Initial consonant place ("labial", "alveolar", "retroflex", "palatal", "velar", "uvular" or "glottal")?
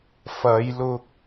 labial